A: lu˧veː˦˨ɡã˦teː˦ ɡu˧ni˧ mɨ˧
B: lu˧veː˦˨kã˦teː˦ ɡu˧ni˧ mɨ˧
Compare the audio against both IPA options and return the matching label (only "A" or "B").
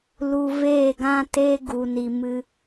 A